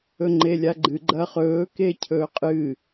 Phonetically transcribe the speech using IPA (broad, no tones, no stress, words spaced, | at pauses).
ɵŋ͡ǃelʲaɡ͡ǃɨ ɡ͡ǃɐːχɵː kecʰɵːqʼɨ